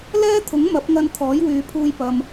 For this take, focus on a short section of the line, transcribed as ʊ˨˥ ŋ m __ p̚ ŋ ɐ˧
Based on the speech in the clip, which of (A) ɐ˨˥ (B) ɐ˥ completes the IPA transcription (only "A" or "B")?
A